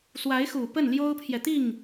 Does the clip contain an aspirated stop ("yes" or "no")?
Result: yes